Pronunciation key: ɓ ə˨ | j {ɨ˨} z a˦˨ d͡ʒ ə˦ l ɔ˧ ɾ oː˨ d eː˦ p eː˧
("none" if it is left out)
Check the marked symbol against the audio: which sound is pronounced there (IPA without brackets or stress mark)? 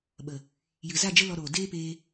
ɨ˨